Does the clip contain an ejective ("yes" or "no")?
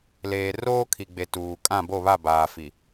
yes